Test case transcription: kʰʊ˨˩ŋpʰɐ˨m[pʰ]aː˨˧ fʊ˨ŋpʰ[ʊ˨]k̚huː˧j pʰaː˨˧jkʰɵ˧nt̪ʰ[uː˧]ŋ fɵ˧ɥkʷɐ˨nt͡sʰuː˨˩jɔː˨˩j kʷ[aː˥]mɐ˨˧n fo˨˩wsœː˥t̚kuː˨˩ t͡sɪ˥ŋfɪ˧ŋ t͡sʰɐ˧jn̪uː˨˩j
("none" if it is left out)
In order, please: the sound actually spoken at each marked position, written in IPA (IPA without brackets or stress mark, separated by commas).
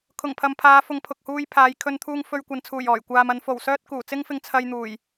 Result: pʰ, ʊ˨, uː˧, aː˨